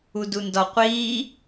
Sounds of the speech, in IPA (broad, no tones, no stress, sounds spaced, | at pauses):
u d u n d ɒ qʷ iː